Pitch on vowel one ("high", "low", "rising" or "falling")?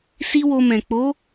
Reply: high